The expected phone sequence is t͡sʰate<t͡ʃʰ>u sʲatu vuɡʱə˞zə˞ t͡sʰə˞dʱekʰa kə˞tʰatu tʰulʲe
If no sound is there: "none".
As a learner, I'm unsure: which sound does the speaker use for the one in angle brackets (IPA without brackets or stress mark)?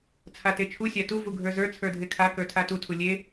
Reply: t͡ʃʰ